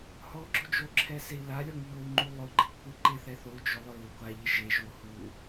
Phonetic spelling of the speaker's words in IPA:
h ɔ ɡ͡ǁ ʊ d͡ʒ o ǁʰ ɛ s e i̯ l a lʲ ɔ ŋ ʎ o u̯ ŋ͡ǃ u lˠ ʊ ɡ͡ǃ ɪ kʷʰ e ǃ ɪ θ ɛ θ o u̯ d͡ʒ ʊ lˠ ɹ ʊ ɡʷ a ʎ ɪ ʒ e ʒ o h u

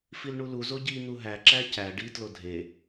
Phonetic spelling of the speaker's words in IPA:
f i l ɳ u l u z o ɟ i n̪ u ɦ æ ǁ æ c æ ɖ i t l o dʱ e

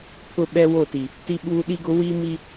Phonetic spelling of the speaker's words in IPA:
pʰ ʊ˦ ɓ ɛ˦ w o˦˨ t i˨ | t i˦ ɓ uː˦ ɗ i˦ ɡ ʊ˦ w i˦ m i˦

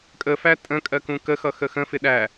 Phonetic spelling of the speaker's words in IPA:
kʼ ə f æ tʼ ə̃ kʼ ɜ k ũ k ə x ʌ x ə x ə̃ f ɪ ɗ æ

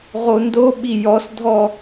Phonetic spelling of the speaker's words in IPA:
ʁ o n d o ɓ i j ɔ s dʱ ɔ

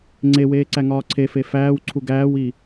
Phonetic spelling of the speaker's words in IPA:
ŋ͡ǀ e w eː ǀ æ ŋ ɒː ǀʰ e f e f æː w ǀʰ u ɡ æː w i

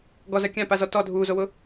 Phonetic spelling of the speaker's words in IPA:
ɡ ɔ z ɜ kʲ ã p a z ɔ t ɔ dʱ uː z o w ʊ

